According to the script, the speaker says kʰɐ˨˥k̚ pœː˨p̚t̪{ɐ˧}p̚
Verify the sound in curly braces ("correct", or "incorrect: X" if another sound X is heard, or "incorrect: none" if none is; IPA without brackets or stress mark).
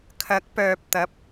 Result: incorrect: ɐ˨˥